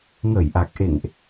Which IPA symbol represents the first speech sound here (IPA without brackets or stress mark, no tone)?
ŋ